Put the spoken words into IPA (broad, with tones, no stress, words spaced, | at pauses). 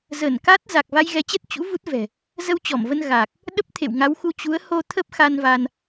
zəː˧˩n ka˦˥t̚ za˨˩k̚ va˧jɣɛ˨˦t͡ɕɛ˦˥t̚ t͡ɕṵ˧˥ vu˦˥t̚vɛ̤˨˩ | zə˧wt͡ɕɔ˧˩mvə˧n ɣa˨˩k̚ | ɗə˦˥p̚t̪ʰḛ˧˨wŋa˨˦wxu˧ t͡ɕu˨˦ə̯ho˧ t̪ʰə˦˥p̚xa˧n va˧n